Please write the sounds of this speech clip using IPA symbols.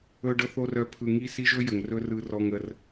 ɵ˨ ɖ ɤ˨ θ o˨ r œ˨˦ pʰ ɯ˨ ŋ i˦ s i˦ ʒ ɵ˦ j ə˨ ŋ r ɵ˦ r ɯ˨ r ɔ˨ ŋ ə˨ r

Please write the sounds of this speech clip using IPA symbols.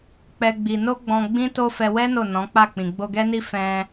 k͡p ɛ˦ ɡ͡b i˧ n o˦ ɡ͡b ɔ̃˧ ɡ͡b ĩ˦ t o˦ f ɛ˧ w ɛ˦ n o˦˨ n ɔ̃˨˦ k͡p a˦˨ k͡p ĩ˨ ɡ͡b o˧ ɡ ɛ˦ n i˦ f ɛ̃˧

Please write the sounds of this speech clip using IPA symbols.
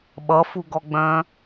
ɓ ʌ f u ɡ ɔ ɡ͡b œ̃

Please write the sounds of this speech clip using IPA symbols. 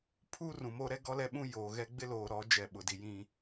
pʰ u˦ r ũ˨ m o˦ ɾ ɛ˦ ɡ ɔ˦ l ɛ˦ ɓ ũ˦ j oː˨ ɣ ɛ˦ ɡ͡b ɪ˦ l oː˨ ɾ ɔ˨˦ d͡ʒ ɛ˨ ɓ ʊ˨ d i˨ j ĩ˦

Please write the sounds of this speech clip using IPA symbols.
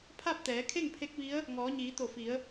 pʰ a˥˨ p̚ t̪ ɛː˩˧ kʰ e˥˨ ŋ pʰ e˧˥ k̚ ʋ i˧˥ ə̯ | ŋ ɔː˩˧ ɲ iː˩˧ t̪ o˧˩ f i˩˧ ə̯

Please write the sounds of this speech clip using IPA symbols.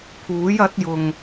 pʰ uː˨˥ j ɐ˨˥ t̚ j ʊ˨ ŋ

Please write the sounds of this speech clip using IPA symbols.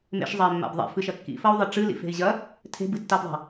m ḛ ʃ zˤ ɐ i̯ mː a̰ b ðˤ a̰ f ɨ ʃ ɐ kː ḭ f ɐ u̯ ðˤ ɘ ʈ͡ʂ ɨ l ḭ f e̤ i̯ ʑ ɐ | tʰ e̤ b ɨ tː a b ðˤ a̤

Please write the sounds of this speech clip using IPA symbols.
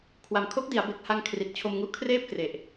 kʰ w a˨˩ m kʰ o˦˥ k̚ d i˩˦ a̯ b e˨˩ k̚ h a˧ ŋ kʰ r i˨˩ t̚ t͡ɕʰ o˧ m ŋ u˦˥ ʔ kʰ r eː˥˩ p̚ k r e˨˩ ʔ

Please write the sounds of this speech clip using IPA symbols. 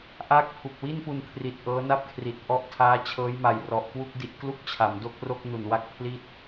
ʔ aː˥˩ k̚ pʰ u˨˩ k̚ w i˥˩ n p u˧ n kʰ r i˨˩ t̚ ʔ ɤː˦˥ n a˥˩ p̚ kʰ r i˨˩ t̚ ʔ ɔ˥˩ ʔ tʰ aː˦˥ t͡ɕʰ ɤː˦˥ j m a˨˩ j r ɔ˨˩ ʔ k w u˥˩ k̚ d i˦˥ ʔ k l u˥˩ k̚ t͡ɕʰ a˩˦ m d o˥˩ k̚ r o˥˩ k̚ n u˨˩ n w a˥˩ k̚ pʰ l i˥˩ t̚

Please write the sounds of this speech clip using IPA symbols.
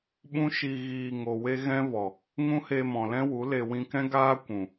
ɓ ũ˦ ʃ i˧ ɣ iː˧ ŋ o˨ w e˦ ɣ ɛ̃˦ v ɔ˨ | ŋ ũ˦ h e˧ m ɔ̃˨ l ɛ̃˦ w u˨˦ l e˧ w ĩ˧ k ɛ̃˦ ɡ aː˦ kʷ ũ˨

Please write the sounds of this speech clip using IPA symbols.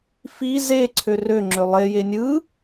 f i z e ǀʰ ø r ø ŋ͡ǁ ø lˠ e j e nʲ ɯ

